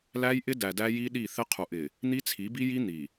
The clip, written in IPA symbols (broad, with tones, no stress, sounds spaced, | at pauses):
l æ˦ j ʔ ɪ˦ d æ˨ d æ˦ j i˦ ɗ i˦˨ θ ɪ˦ qʰ u˨ ʔ ɪ˨ | n̪ i˦ t͡sʰ i˨˦ b i˦ j i˦ n̪ i˨